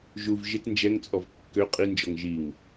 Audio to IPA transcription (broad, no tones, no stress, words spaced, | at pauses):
ʒuv ʒɪt nd͡ʒɛŋt͡sʼɔv kːø qʼind͡ʒɔŋ ʒiŋ